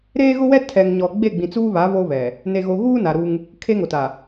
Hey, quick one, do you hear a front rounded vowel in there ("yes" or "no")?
no